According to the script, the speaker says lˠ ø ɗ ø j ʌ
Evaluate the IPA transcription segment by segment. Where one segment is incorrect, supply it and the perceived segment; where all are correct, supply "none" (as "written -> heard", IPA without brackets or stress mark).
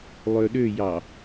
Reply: ʌ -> ɑ